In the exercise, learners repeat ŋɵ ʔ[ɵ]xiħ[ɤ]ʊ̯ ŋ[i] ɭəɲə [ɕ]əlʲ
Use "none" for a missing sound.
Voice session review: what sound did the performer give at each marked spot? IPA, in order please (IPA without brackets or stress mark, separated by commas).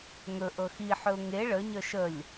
ɤ, ɵ, e, ʃ